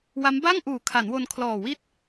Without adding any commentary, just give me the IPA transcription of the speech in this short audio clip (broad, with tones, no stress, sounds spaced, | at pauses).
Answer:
w a˦˥ m b a˥˩ ŋ ʔ uː˨˩ kʰ a˩˦ n w o˧ n kʰ l ɔː˨˩ w i˥˩ t̚